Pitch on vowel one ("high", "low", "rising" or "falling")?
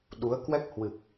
rising